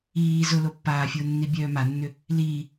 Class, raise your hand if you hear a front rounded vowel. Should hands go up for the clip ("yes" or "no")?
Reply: yes